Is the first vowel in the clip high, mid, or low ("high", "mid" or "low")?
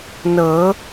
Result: mid